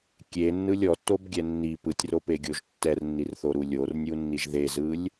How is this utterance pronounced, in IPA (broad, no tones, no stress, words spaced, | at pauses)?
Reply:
kʲenːɯlʲ ɔtːobɡʲɛ nːi pɯtʲropeɡʲoʒ tːɛrnːirθoɾu lʲornʲunːiʒ ðezɯlʲ